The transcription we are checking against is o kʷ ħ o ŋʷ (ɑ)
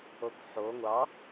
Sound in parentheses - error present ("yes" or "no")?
no